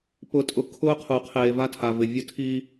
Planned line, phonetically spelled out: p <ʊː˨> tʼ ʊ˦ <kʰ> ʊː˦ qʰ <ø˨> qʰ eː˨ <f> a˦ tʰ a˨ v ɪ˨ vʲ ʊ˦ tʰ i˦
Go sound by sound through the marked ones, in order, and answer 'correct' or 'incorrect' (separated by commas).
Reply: incorrect, correct, incorrect, incorrect